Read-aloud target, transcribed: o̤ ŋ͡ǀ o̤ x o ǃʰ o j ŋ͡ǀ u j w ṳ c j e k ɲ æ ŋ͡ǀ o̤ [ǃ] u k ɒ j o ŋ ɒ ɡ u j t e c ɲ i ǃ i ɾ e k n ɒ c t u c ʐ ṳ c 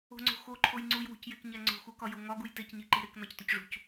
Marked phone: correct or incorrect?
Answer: incorrect